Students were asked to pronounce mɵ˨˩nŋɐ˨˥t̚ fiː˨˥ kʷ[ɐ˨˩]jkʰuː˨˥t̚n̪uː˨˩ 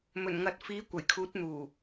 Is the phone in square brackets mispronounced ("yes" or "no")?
no